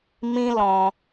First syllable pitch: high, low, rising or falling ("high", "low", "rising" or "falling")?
high